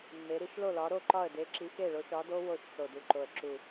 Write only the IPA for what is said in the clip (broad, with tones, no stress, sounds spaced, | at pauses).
mː e˨˥ ɾ i˨˥ ʃ l o˥˩ l ɒ˨˥ ɾ o˥˩ ǃ ɒ˥˩ ə̯ d e˨˥ ǁ i˨˥ x e˥˩ ɭ o˨˥ ʃ ɒ˨˥ d o˦˥ w o˥˩ ʃ s o˨˩ d u˨˩ ǃ o˨˩ ə̯ ǁ u˨˩